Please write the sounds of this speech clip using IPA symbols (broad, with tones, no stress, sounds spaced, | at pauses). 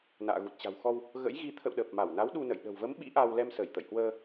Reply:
n a̰ː˧˨ ɣ u˨˩ t̚ t͡ɕ a̤˨˩ w x ɔ˧ w | ɣ ə̰˧˥ j ɣ i˨˦ t̪ʰ ə̰˧˨ w ɗ əː˨˩ p̚ m a˧˩ w n a˨˦ w ɗ u˧ n ə̰˧˨ j ɗ ə̤˨˩ w v ə˨˦ m ɓ ḭ˧˥ ʔ a˧ w l ɛ˧ m s əː˧˩ j t̪ ə̰˧˨ j h w əː˧